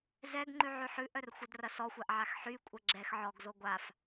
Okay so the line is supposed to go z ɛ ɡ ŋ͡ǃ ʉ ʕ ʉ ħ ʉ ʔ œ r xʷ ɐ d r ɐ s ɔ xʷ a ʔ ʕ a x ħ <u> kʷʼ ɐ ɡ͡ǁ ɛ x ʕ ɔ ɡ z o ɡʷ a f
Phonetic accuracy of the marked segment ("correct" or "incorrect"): incorrect